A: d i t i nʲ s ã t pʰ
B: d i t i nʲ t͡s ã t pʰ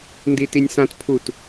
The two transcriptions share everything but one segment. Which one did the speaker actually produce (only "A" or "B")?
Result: A